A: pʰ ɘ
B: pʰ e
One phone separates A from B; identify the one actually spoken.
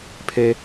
B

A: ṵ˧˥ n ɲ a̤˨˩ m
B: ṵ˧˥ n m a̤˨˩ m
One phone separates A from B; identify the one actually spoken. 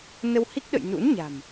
A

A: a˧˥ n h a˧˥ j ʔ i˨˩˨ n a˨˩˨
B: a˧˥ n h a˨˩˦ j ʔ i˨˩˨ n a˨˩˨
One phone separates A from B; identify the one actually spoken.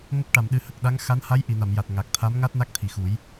A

